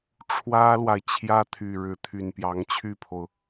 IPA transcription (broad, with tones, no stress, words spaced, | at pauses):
ʈ͡ʂʰwä˥lwa˨ɪ̯ t͡ɕʰjä˥t̪ʰy˨˩ɻɻ̩˧˥t̪ʰy˨˩n pjɑ˧˥ŋt͡ɕʰy˥˩pʰo˩ʊ̯